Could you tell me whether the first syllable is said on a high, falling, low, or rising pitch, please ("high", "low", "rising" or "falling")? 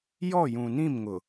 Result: falling